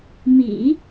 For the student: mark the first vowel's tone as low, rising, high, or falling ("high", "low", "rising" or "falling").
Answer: low